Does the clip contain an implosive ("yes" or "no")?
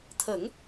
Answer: no